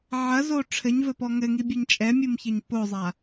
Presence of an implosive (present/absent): absent